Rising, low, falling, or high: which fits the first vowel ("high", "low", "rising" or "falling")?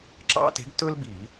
high